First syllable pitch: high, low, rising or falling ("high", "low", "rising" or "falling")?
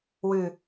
low